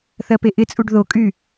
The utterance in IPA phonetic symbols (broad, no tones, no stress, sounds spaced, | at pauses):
θ ɜ p e ʔ ɪ t͡sʼ u ɖ ð o kʼ y